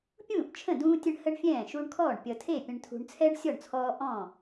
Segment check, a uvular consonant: absent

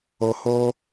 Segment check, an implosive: absent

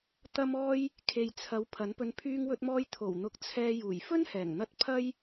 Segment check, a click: absent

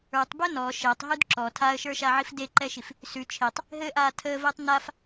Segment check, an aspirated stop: present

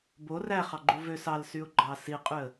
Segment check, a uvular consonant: present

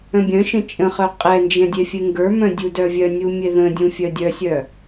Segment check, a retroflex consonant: absent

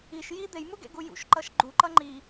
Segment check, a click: present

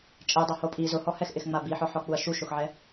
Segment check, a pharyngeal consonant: present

